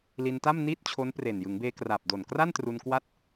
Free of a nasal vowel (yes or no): yes